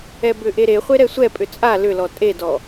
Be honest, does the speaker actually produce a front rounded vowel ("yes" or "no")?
yes